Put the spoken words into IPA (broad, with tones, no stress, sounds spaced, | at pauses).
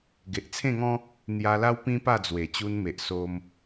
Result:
ɡ e˨ ʔ t͡sʰ ẽ˥˧ ŋ ɔ̃˦ | n̪ j a˧ l a˦ w p ĩ˦ p a˥˧ d͡z w e˨˩ t͡ɕ u˧ n m e˨ ʔ s o˧ m